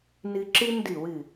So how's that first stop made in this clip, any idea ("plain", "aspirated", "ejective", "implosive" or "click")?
click